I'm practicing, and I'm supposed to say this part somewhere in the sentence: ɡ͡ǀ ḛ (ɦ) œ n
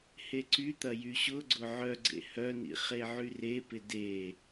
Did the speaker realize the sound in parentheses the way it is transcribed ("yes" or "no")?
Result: no